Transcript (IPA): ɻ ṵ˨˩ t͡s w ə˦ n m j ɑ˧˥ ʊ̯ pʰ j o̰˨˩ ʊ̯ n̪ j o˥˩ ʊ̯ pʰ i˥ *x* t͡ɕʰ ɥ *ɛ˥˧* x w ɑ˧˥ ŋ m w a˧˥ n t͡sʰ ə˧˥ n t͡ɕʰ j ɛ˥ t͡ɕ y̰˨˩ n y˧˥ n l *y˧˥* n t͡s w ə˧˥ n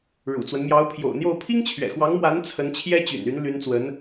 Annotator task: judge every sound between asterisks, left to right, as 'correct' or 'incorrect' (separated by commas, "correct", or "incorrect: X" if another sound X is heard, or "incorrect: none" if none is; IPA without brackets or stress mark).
incorrect: ŋ, incorrect: ɛ̰˨˩, correct